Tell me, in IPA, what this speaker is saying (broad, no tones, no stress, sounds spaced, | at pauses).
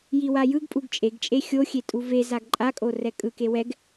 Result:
j i w a j ɯ ɡ pʼ u ɡ t͡ʃʼ e ɡ t͡ʃʼ e xʲ o xʲ e tʼ u v e z a ɡ ǃʼ a kʼ o r ɛ kʼ ɯ k e w ɛ ɡ